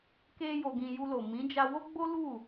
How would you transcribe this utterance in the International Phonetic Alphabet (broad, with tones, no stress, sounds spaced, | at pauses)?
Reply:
k e˧ j o˨ ɡ ĩ˨ j u˧ l o˨ m ĩ˨˦ d͡ʒ a˧ w o˦ ɡ͡b o˦ l u˦˨